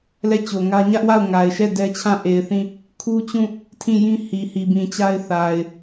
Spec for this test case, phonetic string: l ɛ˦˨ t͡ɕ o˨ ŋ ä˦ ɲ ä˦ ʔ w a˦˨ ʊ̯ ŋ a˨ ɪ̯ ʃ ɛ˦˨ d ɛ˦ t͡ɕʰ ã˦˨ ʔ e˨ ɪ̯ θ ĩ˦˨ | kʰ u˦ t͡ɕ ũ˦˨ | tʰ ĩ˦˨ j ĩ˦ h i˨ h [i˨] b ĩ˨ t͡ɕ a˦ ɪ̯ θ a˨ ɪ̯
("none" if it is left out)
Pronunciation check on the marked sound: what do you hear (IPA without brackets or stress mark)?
i˨